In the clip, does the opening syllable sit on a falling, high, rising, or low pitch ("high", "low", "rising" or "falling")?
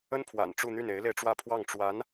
high